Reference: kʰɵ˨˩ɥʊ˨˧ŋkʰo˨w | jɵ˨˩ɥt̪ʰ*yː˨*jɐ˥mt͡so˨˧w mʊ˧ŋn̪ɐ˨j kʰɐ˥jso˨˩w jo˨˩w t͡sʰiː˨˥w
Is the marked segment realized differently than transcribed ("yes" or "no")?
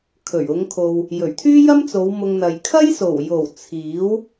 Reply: yes